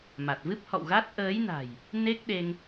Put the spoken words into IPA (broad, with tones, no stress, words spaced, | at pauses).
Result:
ma˨˩t̚vɨ˦˥p̚hɔ̰˧˨wɣa˦˥t̚ ʔəː˨˦jna̤˨˩j | ne˦˥k̚ ɗe˧ŋ